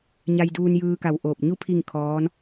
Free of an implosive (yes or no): yes